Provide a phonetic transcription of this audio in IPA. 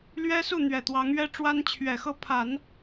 l ɥ ɛ˥ s u˥˩ n̪ ɥ ɛ˨˩ t̪ w ɑ˧˥ ŋ ɥ ɛ˥ ʈ͡ʂ w a˥ n t͡ɕʰ ɥ ɛ˨˩ x ɤ˥˩ pʰ a˨˩˦ n

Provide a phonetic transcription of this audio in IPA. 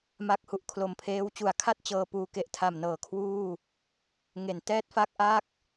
m a˦˥ k̚ h u˨˩ ʔ kʰ l o˨˩ m pʰ eː˦˥ w t͡ɕ u˩˦ a̯ kʰ a˥˩ t̚ t͡ɕ ɤː˧ p uː˧ k e˨˩ ʔ tʰ a˨˩ m n ɤː˨˩ kʰ w uː˥˩ | ŋ e˩˦ n t ɛː˥˩ t̚ f a˥˩ k̚ ʔ a˥˩ k̚

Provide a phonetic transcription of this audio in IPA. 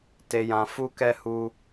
t e˧ j ã˧ f u˦ k ɛ˦ h u˦

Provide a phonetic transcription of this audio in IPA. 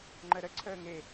ŋ͡ǃ ə ɾ ə ǀʰ əː ŋ e

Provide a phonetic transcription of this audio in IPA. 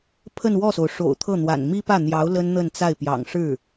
pʰ ə˥˧ n w ɔ˥˩ s o˩ ʊ̯ ʂ o̰˨˩ ʊ̯ t̪ʰ ɤ˥˩ n̪ w a̰˨˩ n m i˥ p ä˥˩ n̪ j ɑ˧˥ ʊ̯ l ə˥ n n̪ ə˥˧ n t͡s a˥˩ ɪ̯ p j ɑ̰˨˩ ŋ ʂ ɻ̩˥˩

